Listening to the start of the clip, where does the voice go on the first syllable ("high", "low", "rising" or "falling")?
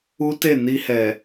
high